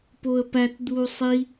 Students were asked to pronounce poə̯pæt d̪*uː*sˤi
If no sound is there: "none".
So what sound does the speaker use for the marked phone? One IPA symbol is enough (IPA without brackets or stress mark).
uː